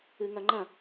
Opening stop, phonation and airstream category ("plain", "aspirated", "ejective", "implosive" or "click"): click